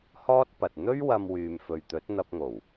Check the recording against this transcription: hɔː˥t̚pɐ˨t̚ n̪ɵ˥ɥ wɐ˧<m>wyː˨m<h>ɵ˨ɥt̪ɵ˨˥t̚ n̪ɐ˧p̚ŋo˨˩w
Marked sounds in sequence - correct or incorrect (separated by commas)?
correct, incorrect